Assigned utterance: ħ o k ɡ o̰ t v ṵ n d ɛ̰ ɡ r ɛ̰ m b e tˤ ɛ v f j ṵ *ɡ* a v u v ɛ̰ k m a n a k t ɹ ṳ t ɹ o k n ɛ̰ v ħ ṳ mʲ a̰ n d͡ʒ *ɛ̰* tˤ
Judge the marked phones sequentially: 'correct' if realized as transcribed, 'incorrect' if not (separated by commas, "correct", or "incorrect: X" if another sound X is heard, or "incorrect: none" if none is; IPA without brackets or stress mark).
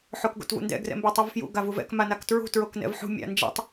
correct, correct